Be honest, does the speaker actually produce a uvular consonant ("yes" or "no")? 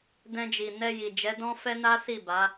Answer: no